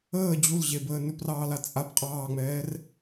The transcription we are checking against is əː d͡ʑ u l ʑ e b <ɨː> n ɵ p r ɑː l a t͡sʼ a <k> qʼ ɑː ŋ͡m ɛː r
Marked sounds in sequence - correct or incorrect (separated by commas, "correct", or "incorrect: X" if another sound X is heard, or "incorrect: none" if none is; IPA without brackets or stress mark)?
incorrect: əː, incorrect: p